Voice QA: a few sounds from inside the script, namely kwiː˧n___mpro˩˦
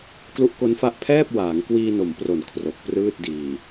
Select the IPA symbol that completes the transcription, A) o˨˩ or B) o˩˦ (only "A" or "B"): B